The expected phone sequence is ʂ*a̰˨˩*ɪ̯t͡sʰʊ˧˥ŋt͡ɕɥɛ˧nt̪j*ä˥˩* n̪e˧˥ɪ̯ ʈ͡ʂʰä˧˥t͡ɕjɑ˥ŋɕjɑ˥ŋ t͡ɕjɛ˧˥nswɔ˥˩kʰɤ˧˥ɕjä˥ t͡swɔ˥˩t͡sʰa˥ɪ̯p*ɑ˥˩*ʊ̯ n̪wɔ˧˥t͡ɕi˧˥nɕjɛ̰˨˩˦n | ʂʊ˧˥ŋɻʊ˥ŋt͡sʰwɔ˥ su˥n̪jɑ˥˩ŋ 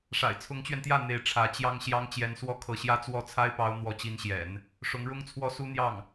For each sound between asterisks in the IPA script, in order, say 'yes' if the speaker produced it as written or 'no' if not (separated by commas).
yes, yes, no